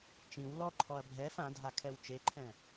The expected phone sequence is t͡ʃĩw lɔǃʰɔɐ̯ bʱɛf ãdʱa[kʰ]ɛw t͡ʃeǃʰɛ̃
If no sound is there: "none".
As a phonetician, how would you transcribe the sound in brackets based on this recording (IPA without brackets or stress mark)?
kʰ